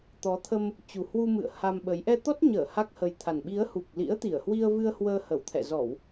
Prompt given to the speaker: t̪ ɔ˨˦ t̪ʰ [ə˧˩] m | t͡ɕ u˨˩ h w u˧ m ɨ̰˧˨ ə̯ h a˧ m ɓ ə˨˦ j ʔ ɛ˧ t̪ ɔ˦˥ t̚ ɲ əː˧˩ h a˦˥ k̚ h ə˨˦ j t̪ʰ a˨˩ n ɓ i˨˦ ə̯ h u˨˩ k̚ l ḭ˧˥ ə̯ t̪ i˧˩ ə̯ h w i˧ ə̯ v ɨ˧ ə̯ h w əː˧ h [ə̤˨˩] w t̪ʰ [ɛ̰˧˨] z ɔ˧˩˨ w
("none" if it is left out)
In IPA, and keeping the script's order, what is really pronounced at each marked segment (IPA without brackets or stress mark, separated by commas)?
ə˧, ə˧˩, ɛ̰˧˨